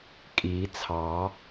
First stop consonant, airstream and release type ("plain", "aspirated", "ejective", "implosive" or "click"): ejective